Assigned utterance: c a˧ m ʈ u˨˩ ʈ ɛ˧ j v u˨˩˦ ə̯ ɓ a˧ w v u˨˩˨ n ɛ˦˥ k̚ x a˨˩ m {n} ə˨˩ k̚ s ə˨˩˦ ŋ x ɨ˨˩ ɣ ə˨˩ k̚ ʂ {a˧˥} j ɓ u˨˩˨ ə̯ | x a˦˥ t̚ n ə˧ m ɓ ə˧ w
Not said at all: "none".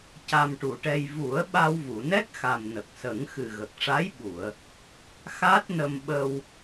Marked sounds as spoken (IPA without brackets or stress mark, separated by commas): n, a˧˥